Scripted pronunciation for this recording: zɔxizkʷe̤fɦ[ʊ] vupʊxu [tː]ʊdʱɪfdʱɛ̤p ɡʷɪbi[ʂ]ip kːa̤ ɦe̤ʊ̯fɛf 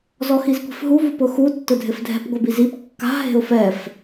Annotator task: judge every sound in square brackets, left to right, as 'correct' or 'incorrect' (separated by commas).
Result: incorrect, correct, incorrect